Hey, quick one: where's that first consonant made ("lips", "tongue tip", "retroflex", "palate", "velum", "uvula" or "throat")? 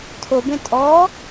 tongue tip